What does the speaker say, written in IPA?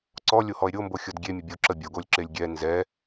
ǀ ɔ lʲ o h ɔ e̯ ɾʲ o m b o xʲ ɔ d ɡʲ e mʲ ə bʲ o ǁ ə bʲ o ɡ o lʲ ǁ e lʲ ɡʲ ɛ n z ɛ

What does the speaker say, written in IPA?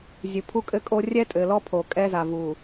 zʲ ɨ˨ pʰ u˦ kʼ ɘ˦ kʼ o˦ rʲ ɛ˦ tʼ ɘ˨ l ɔ˦ pʰ o˨ kʼ ɛ˦ z a˨ v u˨

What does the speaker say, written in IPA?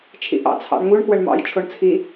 t͡ʃʰ ḭ ʔ ɑ̰ t͡sʰ ɑ̰ ɳ ŋ u ɳ k w ə ɳ m ɑ̰ j t͡ʃʰ o ɳ t͡sʰ i

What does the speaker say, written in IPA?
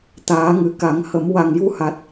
t̪ aː˨˩˦ ŋ ɨ˨˩˦ k a˨˩˦ ŋ h ə˨˩˦ m w a˨˩ ŋ j u˧ h a˨˩ t̚

